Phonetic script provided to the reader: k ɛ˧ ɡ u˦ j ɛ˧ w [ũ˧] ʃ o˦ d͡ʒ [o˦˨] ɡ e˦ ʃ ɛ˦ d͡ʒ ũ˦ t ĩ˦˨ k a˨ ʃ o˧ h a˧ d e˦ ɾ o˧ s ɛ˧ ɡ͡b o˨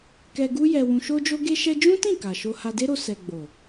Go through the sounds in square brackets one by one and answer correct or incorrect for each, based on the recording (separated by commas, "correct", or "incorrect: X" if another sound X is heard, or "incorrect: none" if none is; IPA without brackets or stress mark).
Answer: correct, incorrect: o˦